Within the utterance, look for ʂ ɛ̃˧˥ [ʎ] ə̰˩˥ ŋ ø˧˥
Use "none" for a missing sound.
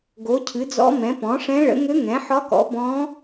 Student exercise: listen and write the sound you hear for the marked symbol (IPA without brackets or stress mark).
ɭ